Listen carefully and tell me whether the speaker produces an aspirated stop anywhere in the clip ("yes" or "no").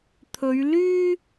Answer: yes